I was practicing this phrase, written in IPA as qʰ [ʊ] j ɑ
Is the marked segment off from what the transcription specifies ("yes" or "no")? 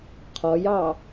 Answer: yes